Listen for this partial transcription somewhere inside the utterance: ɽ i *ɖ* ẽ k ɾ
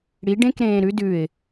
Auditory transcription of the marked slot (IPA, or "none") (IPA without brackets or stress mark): ɖ